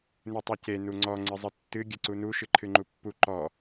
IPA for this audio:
n ɨ tˤ u c e n u ŋ͡ǀ ɔ ŋ͡ǀ ɨ zˤ ɨ tː ɨ ɡʲ ɨ ǀ u n u ʃ ɨ ǃʰ ɨ ŋ͡ǃ u pː u ǃ ɔ

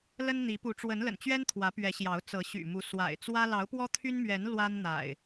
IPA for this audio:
l ə˦ n n̪ i˨˦ p u˨˦ ʈ͡ʂ w ə˨˦ n l ə̰˨˩ n t͡ɕ ɥ ɛ˦ n t̪ʰ w ä˨˦ p ɥ ɛ˨˦ ɕ j ɑ˨˦ ʊ̯ t͡s ɤ˨˦ ɕ y̰˨˩ m u˨˦ s w a̰˨˩ ɪ̯ t͡s w ä˦ l ɑ˨˦ ʊ̯ p w ɔ˦ t̪ʰ y˦ n m ɥ ɛ˨˦ n l w a˦ n n̪ a̰˨˩ ɪ̯

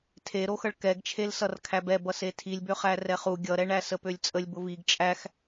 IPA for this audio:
tʰ e ɾ o x ʌ ɭ k ɛ ɡ t͡ʃʰ e l s ʌ r kʰ æ b ɛ b ʌ s e tʰ i lʲ b ø χ æ r ɛ χ u ɡʲ ʌ ɾ ɛ ɳ æ s ə p ø lʲ t͡sʼ ə lʲ b ʊ v i ɡ t͡ʃʼ æ x

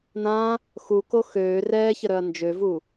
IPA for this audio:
n̪ ã | x u k o x øː r ɛː ç ə ɾ œ ɐ̯ n d͡ʒ ø v u

